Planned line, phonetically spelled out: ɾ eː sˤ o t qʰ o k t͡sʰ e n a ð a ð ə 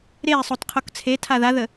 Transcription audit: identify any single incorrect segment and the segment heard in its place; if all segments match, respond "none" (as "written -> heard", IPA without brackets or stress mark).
n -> tʰ